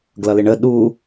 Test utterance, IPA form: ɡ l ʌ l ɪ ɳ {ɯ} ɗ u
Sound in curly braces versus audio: incorrect: ə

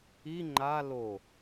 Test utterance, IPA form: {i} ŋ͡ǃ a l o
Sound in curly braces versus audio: correct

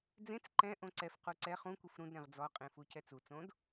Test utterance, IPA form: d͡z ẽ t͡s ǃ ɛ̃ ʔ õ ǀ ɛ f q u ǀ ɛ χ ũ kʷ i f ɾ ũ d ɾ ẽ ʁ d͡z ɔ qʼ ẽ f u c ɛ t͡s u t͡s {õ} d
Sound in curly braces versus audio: correct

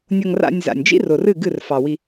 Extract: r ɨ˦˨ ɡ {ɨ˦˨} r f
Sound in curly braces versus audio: correct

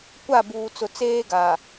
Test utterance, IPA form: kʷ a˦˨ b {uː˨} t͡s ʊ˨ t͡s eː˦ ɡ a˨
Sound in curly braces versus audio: correct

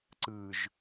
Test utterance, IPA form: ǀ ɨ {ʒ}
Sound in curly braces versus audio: correct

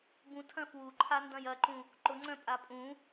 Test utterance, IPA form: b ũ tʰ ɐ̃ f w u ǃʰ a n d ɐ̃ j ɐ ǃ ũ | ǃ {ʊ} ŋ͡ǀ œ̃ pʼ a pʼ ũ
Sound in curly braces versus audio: correct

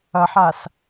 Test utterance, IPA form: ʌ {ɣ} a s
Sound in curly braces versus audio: incorrect: ħ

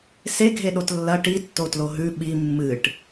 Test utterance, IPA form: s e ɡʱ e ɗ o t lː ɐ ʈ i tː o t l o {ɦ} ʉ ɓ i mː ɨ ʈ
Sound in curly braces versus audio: correct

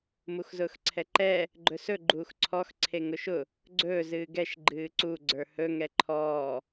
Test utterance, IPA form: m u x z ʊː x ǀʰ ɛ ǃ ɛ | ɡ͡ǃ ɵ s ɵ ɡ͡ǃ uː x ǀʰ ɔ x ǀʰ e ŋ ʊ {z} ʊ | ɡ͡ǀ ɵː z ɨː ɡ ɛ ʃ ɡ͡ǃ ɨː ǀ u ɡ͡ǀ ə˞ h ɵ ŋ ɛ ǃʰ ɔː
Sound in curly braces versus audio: incorrect: ʃ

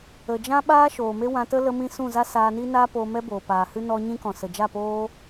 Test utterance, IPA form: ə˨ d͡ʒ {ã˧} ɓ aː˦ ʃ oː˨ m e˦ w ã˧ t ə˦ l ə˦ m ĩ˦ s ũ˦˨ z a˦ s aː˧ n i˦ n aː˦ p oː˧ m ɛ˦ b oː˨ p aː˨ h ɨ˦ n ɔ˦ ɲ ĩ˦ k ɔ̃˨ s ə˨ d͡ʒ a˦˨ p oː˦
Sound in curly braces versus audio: incorrect: ã˦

